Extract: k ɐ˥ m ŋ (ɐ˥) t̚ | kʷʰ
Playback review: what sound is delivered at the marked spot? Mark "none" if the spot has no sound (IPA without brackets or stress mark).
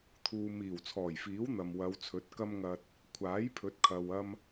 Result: ɐ˧